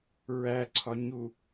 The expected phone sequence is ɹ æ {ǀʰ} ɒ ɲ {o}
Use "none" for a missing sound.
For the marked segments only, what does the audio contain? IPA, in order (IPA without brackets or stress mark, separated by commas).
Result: ǀʰ, u